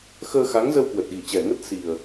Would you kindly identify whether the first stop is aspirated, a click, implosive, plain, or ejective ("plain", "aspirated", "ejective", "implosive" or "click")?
plain